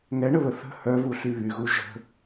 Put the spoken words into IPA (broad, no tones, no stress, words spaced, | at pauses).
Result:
ŋɛɳəβə θə̤ hœvuɬy βyɣu ʒə̤